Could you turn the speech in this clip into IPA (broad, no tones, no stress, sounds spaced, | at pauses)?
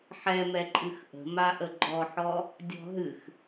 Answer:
ħ ɛ m ɛ ǃʼ ɨ x ʔ ə̤ m a ʔ ə ɡ͡ǃ ɔ ħ ɔ | dʲ ɔ̤ ɦ ɨ x